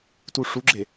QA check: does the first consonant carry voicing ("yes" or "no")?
no